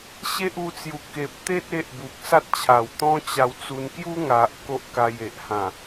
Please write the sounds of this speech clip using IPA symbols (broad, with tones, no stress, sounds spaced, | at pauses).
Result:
ɕ e˦ ʔ u˧ t͡s j u˨˩ k e˨ p̚ t̪ e˦ t̚ e˦ ʔ b u˨ k̚ s a˦ t̚ t͡ɕʰ a˨˩ w t̪ ɔ̃˦ t͡ɕ a˧ w t͡s u˧ n k j u˦ ŋ a˨ ʔ k o˦ ʔ k a˧ j e˨ ʔ h ã˨˩